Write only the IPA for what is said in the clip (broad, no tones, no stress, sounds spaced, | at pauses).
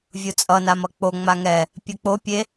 vʲ u t͡sʼ ʌ n a m ʌ k͡p o ŋ͡m a ŋ ɛ | pʲ ɯ k͡p o pʲ e